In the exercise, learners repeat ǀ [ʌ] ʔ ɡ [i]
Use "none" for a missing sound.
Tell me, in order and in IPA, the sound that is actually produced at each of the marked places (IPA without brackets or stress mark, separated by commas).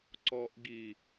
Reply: ɔ, i